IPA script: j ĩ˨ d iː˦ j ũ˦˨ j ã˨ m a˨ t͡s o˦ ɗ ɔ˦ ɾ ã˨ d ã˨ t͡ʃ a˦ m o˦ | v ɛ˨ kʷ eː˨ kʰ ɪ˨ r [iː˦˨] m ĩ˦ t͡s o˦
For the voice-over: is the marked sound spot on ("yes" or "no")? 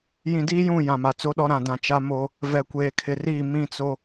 yes